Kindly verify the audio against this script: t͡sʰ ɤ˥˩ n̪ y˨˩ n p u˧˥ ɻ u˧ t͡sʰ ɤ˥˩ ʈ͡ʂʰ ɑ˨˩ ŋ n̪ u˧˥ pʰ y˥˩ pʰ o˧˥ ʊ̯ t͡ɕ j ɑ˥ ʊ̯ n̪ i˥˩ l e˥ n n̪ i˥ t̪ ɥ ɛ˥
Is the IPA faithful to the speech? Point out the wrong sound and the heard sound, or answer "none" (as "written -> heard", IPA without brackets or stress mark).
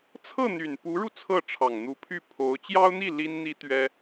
e˥ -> i˥